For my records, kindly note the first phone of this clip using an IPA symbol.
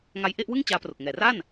ŋ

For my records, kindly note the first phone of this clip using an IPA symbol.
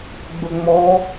ɡ͡b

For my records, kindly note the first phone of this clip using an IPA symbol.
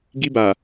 ɡ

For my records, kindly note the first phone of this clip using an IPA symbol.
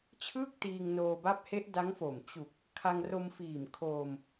t͡ɕʰ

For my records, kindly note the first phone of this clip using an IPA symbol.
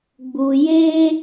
ɡ͡b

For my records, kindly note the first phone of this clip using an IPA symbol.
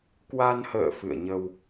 k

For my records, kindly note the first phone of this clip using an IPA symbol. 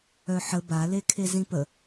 œ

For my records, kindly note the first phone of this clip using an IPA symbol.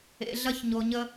ḛ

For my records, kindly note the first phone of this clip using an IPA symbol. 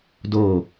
d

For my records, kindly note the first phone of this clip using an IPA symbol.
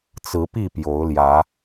t͡s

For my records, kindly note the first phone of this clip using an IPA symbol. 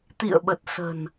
t̪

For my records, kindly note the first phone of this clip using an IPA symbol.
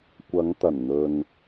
kʷ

